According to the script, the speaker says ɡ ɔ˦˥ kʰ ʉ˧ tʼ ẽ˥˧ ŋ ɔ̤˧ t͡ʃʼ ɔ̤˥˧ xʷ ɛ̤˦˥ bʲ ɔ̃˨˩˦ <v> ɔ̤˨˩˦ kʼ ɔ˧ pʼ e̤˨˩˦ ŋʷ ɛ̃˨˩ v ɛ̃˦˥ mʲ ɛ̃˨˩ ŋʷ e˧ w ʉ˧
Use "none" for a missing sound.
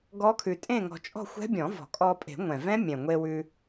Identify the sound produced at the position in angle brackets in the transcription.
v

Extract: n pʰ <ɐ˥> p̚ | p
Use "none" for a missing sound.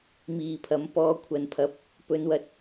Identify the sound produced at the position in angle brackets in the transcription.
ɐ˨˥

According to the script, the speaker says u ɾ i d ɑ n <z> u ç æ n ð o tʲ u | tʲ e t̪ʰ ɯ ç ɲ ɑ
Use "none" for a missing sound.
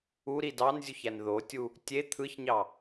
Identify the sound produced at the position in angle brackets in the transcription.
zʲ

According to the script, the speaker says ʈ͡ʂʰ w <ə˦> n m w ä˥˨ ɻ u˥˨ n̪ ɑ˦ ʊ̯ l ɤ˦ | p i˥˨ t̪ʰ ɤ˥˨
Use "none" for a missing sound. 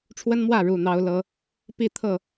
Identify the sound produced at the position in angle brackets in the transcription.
ə˦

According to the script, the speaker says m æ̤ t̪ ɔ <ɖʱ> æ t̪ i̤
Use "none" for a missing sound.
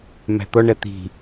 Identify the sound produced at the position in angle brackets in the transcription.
ɳ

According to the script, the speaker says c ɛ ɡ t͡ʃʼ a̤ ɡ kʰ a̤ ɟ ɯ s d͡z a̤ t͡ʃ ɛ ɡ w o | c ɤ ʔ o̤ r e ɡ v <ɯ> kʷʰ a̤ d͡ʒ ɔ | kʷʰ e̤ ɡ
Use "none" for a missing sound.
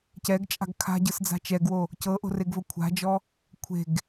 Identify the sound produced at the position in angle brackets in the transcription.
ɤ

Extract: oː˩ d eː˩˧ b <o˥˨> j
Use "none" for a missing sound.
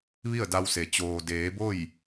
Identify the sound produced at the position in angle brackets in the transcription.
o˥˨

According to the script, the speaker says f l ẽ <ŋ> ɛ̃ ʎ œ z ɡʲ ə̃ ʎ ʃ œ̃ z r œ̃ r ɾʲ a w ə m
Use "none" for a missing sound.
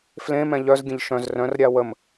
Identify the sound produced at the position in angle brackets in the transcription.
m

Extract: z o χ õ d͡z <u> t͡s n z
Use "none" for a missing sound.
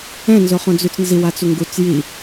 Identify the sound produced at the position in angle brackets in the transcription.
y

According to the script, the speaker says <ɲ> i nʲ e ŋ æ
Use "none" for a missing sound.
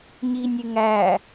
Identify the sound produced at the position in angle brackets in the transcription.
ɲ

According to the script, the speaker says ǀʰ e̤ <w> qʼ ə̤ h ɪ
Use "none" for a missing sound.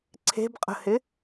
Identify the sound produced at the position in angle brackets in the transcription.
b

